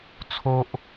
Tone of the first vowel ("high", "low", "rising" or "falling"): high